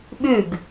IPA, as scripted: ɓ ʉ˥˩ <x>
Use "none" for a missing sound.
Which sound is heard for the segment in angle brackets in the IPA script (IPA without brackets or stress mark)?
ɡ